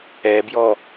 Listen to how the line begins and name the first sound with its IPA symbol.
ɛ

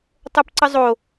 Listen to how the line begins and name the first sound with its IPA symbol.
tˤ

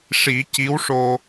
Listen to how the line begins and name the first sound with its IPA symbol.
ʂ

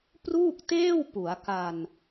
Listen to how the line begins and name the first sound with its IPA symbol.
p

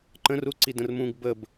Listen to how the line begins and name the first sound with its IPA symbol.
ǃ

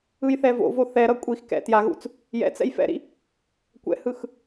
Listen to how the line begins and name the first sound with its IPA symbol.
ɯ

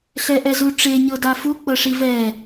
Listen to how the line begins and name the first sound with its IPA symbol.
ɬ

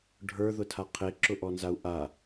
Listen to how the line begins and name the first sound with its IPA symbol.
ɖʱ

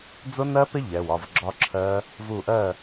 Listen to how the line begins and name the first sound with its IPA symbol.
d͡z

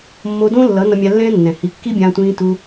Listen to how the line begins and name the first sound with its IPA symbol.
mː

